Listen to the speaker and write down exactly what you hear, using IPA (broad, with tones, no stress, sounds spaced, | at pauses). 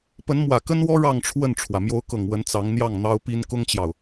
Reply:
p ə˧˥ n m w ä˨˩ k ə˥ n w ɔ˥ ɻ ɑ˥˧ ŋ ʈ͡ʂʰ w ə˥˩ n ʈ͡ʂʰ w ä˩ m j o˧˥ ʊ̯ k ɤ˨˩ ŋ w ə˧˥ n t͡s ɑ˧˥ ŋ n̪ j ɑ˥˩ ŋ n̪ ɑ˥ ʊ̯ p i˥ n k ʊ˥ ŋ t͡ɕ j ɑ˨ ʊ̯